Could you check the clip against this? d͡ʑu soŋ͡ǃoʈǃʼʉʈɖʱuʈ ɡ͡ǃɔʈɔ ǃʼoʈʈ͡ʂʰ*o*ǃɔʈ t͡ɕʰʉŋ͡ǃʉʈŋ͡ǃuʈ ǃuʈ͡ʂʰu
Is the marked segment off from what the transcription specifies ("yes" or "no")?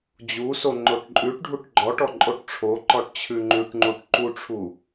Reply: no